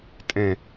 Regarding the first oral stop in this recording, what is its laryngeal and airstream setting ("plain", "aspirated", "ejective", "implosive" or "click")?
ejective